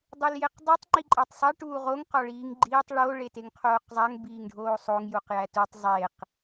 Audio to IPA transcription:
dˤ u l j e q dˤ u tˤ ŋ͡ǃ i ǃʼ æ tˤ sˤ e ʈ uː ʁ o ŋ q ɒ ɭ iː ŋ ɡ͡ǃ iː tˤ ɭ o ɭ e t e ŋ qʰ oː q zˤ æ ŋ b iː ŋ ɖʱ oː sˤ o ŋ j u q j æ t u tˤ zˤ e q

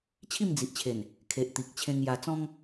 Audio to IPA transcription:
t͡ɕʰ i˥˧ m d͡z i˨ ʔ t͡ɕʰ e˨˩ n | kʰ e˨ ʔ t̪ i˨ k̚ t͡ɕʰ ẽ˧ ŋ j a˧ t͡s ɔ̃˦ ŋ

